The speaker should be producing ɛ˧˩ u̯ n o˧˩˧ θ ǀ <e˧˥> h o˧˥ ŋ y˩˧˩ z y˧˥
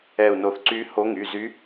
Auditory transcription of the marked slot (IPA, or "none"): y˧˥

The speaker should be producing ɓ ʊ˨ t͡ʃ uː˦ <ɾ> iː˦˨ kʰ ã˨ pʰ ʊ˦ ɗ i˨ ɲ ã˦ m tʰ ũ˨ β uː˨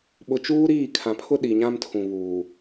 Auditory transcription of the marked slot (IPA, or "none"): ɾ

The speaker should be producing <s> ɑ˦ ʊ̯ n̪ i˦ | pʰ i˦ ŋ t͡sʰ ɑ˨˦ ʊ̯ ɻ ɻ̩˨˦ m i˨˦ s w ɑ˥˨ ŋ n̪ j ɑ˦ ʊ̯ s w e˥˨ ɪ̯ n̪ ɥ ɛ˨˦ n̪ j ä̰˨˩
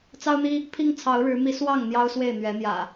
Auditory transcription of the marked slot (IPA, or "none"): t͡s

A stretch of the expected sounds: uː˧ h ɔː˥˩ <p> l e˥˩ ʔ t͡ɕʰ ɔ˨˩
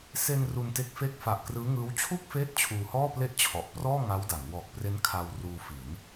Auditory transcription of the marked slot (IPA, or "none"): p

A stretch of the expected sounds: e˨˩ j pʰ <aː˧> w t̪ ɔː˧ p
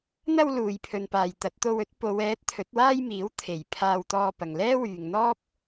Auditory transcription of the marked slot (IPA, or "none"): aː˧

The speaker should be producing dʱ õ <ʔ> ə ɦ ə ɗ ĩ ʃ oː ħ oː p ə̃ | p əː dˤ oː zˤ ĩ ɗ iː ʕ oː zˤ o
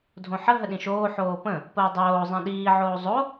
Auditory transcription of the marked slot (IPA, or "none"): ħ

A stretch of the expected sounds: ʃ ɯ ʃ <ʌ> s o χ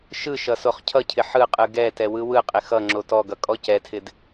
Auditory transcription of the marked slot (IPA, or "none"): ʌ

